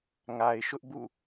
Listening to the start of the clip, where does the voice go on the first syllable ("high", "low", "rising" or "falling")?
low